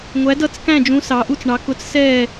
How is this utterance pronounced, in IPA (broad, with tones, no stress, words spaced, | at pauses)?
ŋʷæ˧˥dʌ˥˧t͡skæ̃˥˧d͡ʒũ˧˥ sɑ˧˥ʔu˥˧t͡sɳɑ˧˥ kʊ˧˥t͡ssɛː˥˧